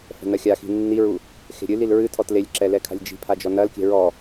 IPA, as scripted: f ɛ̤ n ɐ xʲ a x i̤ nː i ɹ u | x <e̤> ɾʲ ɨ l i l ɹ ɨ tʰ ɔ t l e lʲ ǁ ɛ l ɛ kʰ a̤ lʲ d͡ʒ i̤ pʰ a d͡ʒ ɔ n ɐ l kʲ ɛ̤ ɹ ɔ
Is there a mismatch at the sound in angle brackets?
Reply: no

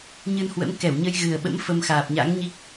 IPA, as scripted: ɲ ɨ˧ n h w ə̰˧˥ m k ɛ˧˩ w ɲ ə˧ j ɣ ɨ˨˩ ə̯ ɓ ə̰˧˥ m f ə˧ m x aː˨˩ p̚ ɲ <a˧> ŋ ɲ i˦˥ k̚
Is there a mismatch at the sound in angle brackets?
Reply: yes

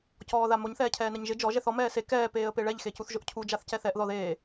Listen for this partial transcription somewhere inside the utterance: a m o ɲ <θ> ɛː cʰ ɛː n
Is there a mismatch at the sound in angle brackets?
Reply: no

